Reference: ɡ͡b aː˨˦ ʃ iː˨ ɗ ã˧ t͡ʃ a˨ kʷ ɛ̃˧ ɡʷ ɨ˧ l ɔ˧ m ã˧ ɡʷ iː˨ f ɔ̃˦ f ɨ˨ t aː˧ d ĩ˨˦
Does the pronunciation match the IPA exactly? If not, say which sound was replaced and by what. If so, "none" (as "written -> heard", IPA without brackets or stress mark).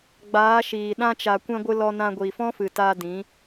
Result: m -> n